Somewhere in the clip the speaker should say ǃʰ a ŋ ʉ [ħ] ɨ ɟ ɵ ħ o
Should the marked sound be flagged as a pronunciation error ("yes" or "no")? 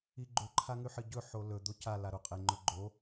no